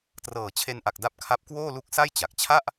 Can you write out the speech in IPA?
t r ɤː˨˩ t͡ɕʰ e˧ n ʔ a˨˩ k̚ d a˦˥ p̚ kʰ a˦˥ p̚ k w oː˥˩ l u˦˥ k̚ s a˥˩ j t͡ɕ a˨˩ k̚ t͡ɕʰ a˥˩ ʔ

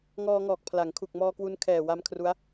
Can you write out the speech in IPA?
ŋ ɔː˧ ŋ ɔː˨˩ k̚ pʰ l a˩˦ ŋ kʰ u˨˩ k̚ m ɔː˧ k w u˧ n kʰ ɛː˨˩ w a˧ m kʰ r u˦˥ a̯

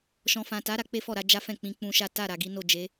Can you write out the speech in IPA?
ʃ ɔ̃˨ f ã˨ t a˨˦ ɾ a˧ k͡p e˦ f ɔ˦˨ ɾ a˨˦ d͡ʒ a˦ f ɛ̃˦˨ k͡p ĩ˨˦ k͡p ũ˧ ʃ a˦ t a˦˨ ɾ a˨ ɡ i˨˦ n o˦˨ d͡ʒ e˨˦

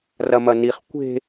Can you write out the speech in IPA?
r ɐ m ɐ n i χ kʷ e̤

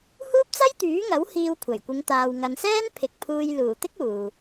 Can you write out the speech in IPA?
h uː˥ p̚ t͡s ɐ˥ j t̪ yː˨˥ ŋ ɐ˨˥ w h iː˧ w kʷʰ ɐ˨˩ j kʷ ɪ˨˧ ŋ t̪ aː˨ w ŋ ɐ˨ n s ɛː˥ n pʰ ɪ˨ k̚ pʰ uː˧ j l uː˨˩ t̪ ɪ˥ k̚ uː˨

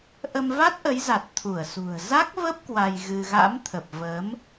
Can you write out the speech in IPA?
ʔ ə˧ m v a˦˥ t̚ ʔ ə˨˦ j z a˨˩ t̚ t̪ʰ u˧˩ ə̯ s ṳ˨˩ ə̯ z a˦˥ k̚ v ə˦˥ p̚ k w a˧ j ɣ ɨ˧ ɣ a̰˧˥ m t̪ʰ ə˨˩ p̚ v ə˨˦ m

